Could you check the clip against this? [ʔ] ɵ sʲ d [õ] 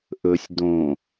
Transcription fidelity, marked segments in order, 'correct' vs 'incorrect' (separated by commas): correct, correct